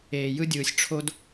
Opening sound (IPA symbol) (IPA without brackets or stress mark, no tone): eː